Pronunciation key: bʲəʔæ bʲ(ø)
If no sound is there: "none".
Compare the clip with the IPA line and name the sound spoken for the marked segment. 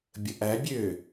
ø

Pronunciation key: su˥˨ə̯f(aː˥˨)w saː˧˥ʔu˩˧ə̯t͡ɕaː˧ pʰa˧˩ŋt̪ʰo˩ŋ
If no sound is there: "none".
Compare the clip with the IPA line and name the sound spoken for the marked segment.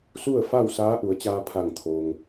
a˥˨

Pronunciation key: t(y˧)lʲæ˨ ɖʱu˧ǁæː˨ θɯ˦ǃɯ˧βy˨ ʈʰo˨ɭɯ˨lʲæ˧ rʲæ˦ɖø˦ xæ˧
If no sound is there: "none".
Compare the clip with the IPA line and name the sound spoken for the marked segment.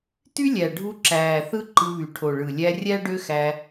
y˦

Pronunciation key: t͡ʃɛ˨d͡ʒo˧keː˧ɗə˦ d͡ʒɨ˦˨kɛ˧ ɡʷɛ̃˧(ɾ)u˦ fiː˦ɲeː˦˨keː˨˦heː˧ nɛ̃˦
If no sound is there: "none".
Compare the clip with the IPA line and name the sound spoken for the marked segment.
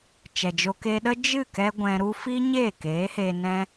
ɾ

